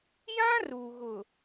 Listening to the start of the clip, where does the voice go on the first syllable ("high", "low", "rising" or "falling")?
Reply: high